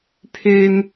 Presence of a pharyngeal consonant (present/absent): absent